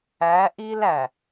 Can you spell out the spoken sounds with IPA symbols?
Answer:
æ˨˦ ʔi˦l æ˨

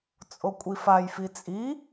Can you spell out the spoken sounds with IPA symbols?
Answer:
t͡sʼokʷʼifajfi t͡sʼi

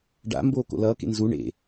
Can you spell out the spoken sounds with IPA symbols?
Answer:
ɖa̰ mboːko̰lʌː kḛnzu ɳḛ

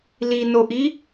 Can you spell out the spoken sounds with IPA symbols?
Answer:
linoʔi

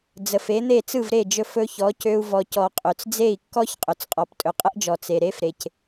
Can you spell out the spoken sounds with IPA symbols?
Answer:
d͡zə˩fe˩˥n̪e˥˩ t͡sɯ˥˩vɾe˥˩d͡ʒɵ˧ fɵ˧çɔ˩˥cø˧u̯ vɔ˩cɔ˩ qʼø˩t͡sd͡ze˥˩i̯kːɔ˥ç qʼɵ˩t͡sqʼɔ˩ptʼɵ˩ qʼə˥ʔd͡ʒɔ˩ t͡se˩ɾe˥f ɾe˩c

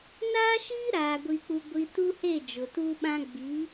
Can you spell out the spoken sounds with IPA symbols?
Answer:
naː˦ʃiː˦ ɾaː˨ ɡʷi˨k͡pu˨ ɡʷi˨ tu˦he˦˨ d͡ʒʊ˨tuː˦ɓã˦ ɡ͡bi˨˦

